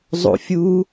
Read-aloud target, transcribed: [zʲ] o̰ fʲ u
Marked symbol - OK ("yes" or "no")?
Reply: no